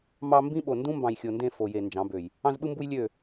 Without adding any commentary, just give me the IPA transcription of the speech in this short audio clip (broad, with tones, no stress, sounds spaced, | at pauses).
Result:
m ɑ˦ m b ĩ˦ ɓ o˨ n d ũ˦ m b ɑ̃˨ j xʲ o˨ n d ẽ˦˨ f o˨ j e˨ n d͡ʒ ɑ̃˨˦ b ø˨ j | ɑ̃˦ z ɓ ɯ˦ m b u˦ j lʲ ø˦˨